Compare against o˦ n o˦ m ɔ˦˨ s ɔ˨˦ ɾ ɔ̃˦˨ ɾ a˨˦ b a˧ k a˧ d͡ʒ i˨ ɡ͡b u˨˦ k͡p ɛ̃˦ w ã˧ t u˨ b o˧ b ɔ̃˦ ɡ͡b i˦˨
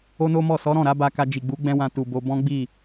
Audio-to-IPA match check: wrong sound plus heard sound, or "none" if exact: k͡p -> ɡ͡b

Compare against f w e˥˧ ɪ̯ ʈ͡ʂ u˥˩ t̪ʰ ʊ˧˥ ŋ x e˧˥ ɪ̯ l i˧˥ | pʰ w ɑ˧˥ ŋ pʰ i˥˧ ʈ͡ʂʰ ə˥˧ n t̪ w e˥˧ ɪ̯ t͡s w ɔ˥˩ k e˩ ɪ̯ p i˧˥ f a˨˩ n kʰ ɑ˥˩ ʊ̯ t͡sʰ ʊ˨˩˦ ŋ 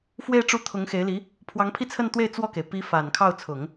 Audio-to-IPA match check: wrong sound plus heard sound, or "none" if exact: ʈ͡ʂʰ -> t͡sʰ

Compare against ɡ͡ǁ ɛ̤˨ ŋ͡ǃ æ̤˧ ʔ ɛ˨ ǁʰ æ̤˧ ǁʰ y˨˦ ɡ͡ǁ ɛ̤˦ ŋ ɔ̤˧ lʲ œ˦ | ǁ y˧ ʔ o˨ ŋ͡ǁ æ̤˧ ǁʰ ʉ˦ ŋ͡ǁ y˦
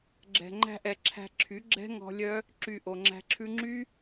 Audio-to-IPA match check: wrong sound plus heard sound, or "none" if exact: none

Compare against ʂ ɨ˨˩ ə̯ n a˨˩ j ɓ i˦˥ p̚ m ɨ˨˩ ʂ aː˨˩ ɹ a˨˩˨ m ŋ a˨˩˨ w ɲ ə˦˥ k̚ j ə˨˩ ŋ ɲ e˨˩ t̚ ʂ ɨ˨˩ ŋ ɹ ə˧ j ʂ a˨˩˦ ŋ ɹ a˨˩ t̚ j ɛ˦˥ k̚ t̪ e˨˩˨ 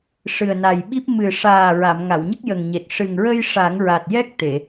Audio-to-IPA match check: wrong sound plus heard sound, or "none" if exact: none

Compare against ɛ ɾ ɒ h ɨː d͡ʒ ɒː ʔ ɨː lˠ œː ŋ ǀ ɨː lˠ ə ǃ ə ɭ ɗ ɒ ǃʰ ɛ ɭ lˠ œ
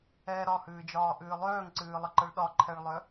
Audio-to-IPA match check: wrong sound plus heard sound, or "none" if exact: none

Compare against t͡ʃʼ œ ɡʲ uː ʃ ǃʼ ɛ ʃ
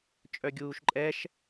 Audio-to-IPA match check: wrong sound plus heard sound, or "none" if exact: none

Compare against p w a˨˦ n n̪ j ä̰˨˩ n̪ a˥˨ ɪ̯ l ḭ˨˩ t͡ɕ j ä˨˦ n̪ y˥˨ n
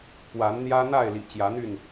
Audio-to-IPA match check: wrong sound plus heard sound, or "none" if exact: ä̰˨˩ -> ä˦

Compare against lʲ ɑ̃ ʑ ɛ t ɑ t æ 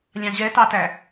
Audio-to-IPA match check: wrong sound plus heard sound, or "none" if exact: none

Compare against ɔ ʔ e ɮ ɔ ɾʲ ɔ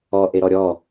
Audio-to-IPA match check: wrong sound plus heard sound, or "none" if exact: ɮ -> ɾ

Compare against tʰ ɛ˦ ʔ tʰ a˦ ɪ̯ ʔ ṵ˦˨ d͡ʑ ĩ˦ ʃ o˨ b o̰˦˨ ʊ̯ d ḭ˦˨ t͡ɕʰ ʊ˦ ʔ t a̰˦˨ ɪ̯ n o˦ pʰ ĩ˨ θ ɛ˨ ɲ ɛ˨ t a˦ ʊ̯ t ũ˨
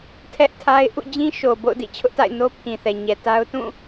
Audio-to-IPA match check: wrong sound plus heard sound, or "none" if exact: ũ˨ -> ũ˦˨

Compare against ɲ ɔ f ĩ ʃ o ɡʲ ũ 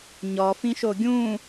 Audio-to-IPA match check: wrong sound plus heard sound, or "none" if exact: none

